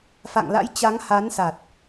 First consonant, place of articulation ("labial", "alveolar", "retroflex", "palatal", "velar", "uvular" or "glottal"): labial